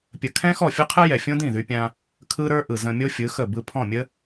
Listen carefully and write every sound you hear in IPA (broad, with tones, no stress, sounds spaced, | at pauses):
pʲ ə˧ kʰ ɛ̃˦ x ɔ˦˨ fʲ ɯ˦ qʰ ɯ˦ j ɛ˨ fʲ õ˦ d ĩ˦˨ ð y˧ pʲ ã˧ | kʰ ɯ˦ ɾ ə˞˦ ʔ ɯ˨ z ə̃˧ mʲ o˦ fʲ ɯ˨˦ x ə˦˨ b ɯ˧ pʰ ɔ̃˦˨ mʲ ə˦